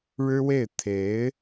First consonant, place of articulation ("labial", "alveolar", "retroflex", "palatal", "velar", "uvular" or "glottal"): retroflex